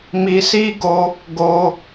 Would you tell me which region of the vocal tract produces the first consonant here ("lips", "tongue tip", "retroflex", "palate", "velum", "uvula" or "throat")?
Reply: lips